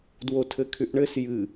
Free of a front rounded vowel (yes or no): no